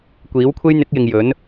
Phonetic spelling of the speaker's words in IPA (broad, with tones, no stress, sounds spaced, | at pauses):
kʷ iː˨˥ w kʷʰ e˥ j n̪ ɪ˨˥ k̚ j ɪ˨ ŋ j ɵ˨˥ n